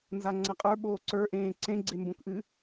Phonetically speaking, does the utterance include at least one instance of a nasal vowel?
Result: yes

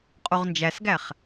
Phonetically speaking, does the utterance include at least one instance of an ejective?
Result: yes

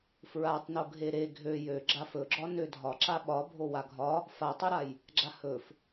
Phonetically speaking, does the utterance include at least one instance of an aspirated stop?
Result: no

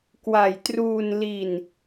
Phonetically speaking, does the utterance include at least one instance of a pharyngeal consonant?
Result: no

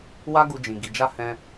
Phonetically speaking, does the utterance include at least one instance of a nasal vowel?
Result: yes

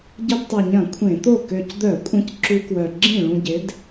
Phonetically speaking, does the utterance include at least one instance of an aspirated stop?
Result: yes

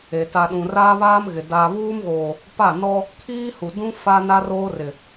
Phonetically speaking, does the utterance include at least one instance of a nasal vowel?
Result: yes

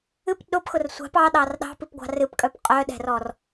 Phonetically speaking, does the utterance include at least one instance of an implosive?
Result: yes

